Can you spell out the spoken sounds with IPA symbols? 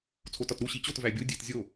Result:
t͡sʰ o t ɒ t ɾ u ɕ i t͡ɕ o t v æ bʲ o dʲ e t zʲ o

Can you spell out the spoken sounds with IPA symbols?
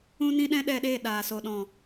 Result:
ũ˦ n ĩ˦ ɗ ɛ̃˦ ɗ ɛ˧ ɗ eː˦˨ ɗ aː˨ s o˨ ɗ ɔ̃˨

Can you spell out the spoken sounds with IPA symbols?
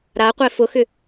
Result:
ɾ a qʷ ɛ f ʊ x ʏ

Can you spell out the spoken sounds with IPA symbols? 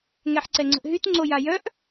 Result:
ŋ ɛ ħ ǀ ɛ ŋ͡ǀ ə̤ ʔ ɦ y t ŋ͡ǀ o j a j œ ʔ

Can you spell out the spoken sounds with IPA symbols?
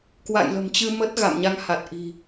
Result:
k w a̰˧˨ j l ə̤˨˩ m t͡ɕ ɨ˧ m ə˦˥ t̚ ɣ a̰˧˨ m ɲ a˨˦ ŋ h a˨˩ t̚ ʔ i̤˨˩

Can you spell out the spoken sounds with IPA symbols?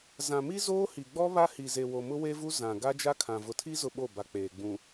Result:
z ã˨ m i˦ z oː˦ h i˨ ɡ͡b ɔ˦ β a˦ h i˨ z e˨ w o˨ m ʊ˦ w e˦ v u˦ z ã˨ ɡ a˦ d͡ʒ a˦ kʰ ã˨ v ʊ˨ tʰ i˦ z ʊ˦ ɓ o˦˨ b a˨ k͡p eː˨ ɡ͡b ũ˨

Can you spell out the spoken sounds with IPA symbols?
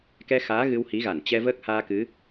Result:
k ɛ˧ x aː˨˦ ɣ ɨ˧ w h i˨˦ ɣ a˧˩ n t͡ɕ ɛ˧ v əː˦˥ k̚ h aː˧ k ɨ˨˦

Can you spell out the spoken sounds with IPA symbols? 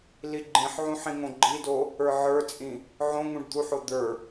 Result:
l i ɡ͡ǃ ĩ ħ ʕ ũ ħ ĩ ŋ õ ɡ͡ǃ i d o | ə˞ ʕ ə˞ t͡sʼ ĩ | ʕ õ ŋ ũ ɖ d̪ u ħ o d̪ ə˞

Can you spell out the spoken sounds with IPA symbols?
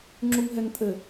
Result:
ŋ͡ǁ u ŋ ɦ ɛ ŋ tʼ ɘ

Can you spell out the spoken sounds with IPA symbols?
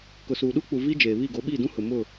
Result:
k ʊ˨ s uː˨ ɗ uː˦ k͡p u˨ v iː˦ d͡ʒ eː˨ β i˦˨ ɡ oː˨˦ ɓ i˦˨ d ũ˦ h ʊ˨ m ʊ˦˨

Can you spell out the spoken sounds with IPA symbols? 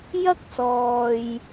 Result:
j ɐ˥ k̚ s ɔː˨ j

